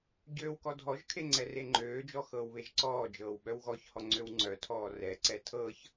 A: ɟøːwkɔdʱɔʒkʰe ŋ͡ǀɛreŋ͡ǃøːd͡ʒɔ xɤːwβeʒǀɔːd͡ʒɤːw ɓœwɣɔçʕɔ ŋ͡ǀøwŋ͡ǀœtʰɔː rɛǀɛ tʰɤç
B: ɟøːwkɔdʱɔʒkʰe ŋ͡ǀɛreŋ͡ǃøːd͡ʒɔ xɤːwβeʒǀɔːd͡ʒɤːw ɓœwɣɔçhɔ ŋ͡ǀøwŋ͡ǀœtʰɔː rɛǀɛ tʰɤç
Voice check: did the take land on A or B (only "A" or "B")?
B